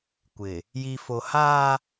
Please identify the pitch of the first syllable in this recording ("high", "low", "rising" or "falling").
low